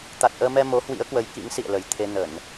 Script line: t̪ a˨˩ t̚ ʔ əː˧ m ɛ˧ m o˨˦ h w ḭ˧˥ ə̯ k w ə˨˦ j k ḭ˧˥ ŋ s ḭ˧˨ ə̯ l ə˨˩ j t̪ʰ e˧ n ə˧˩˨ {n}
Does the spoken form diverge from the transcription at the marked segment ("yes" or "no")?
no